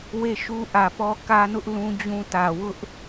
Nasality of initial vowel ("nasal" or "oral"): oral